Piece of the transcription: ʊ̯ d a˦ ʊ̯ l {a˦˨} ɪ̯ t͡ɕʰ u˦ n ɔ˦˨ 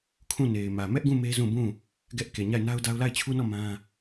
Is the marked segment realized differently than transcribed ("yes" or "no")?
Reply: no